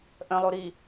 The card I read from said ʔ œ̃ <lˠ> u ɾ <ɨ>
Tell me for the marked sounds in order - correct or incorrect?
correct, incorrect

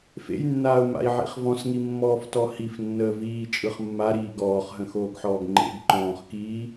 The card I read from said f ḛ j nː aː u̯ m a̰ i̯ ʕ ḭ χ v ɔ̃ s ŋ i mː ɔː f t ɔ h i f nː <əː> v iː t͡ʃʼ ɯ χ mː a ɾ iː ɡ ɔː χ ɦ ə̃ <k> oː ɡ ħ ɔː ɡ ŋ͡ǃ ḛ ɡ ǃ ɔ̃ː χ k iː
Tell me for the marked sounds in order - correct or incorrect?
correct, incorrect

